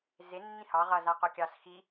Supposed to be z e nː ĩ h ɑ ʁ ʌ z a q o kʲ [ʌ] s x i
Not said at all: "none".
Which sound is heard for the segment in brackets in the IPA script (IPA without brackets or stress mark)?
ɑ